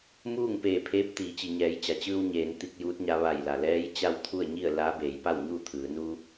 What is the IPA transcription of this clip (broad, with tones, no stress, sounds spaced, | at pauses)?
m uː˥˨ ŋ p eː˧˩ pʰ eː˧˥ p̚ t̪ iː˩˧ t͡ɕ i˩ ɲ ɛː˩˧ j t͡ɕ a˩ t͡ɕ ɯː˧ w ɲ eː˩˧ n t̪ i˧ k̚ j uː˧˥ t̚ ɲ a˧ ʋ a˧˩ j l a˩ l ɛː˧˥ j t͡ɕ a˥˨ w t̪ʰ u˥˨ ə̯ ɲ i˥˨ ə̯ l aː˧˥ b eː˩˧ j p a˥˨ w ɲ uː˥˨ t̪ʰ ɯː˩˧ n u˧